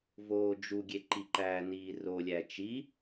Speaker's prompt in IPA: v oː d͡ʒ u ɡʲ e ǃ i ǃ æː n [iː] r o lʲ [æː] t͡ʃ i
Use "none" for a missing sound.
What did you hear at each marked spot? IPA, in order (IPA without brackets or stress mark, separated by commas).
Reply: iː, æ